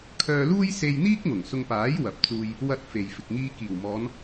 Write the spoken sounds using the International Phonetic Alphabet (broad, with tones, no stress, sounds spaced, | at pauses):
kʰ œː˧ l uː˥ j s e˧ j n̪ iː˥ k̚ ŋ ʊ˨˩ ŋ s ʊ˧ ŋ p aː˨˥ j w ɐ˨ p̚ t͡s uː˧ j | w ɐ˧ t̚ f e˨ j f ɪ˨ k̚ ŋ iː˧ k iː˨˩ w m ɔː˨˧ n